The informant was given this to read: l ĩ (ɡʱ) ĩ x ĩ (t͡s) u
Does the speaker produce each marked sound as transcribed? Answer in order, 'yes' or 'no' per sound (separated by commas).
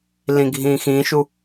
yes, no